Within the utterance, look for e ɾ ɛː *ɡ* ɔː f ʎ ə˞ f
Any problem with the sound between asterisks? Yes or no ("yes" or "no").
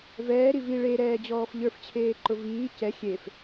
yes